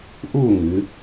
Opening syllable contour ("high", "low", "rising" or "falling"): falling